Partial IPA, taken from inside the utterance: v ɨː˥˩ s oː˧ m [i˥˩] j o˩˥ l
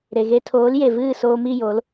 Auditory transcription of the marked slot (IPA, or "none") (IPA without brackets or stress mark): i˥˩